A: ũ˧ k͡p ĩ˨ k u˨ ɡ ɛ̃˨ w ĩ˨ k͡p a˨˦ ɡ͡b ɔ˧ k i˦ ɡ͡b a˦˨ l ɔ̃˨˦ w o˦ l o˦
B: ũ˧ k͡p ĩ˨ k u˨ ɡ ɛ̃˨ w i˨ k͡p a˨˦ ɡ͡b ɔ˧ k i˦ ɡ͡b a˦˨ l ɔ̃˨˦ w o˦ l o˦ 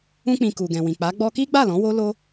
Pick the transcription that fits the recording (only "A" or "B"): A